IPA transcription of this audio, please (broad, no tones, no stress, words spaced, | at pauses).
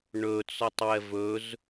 ɳɵt͡sɔtˤwɛv ɵz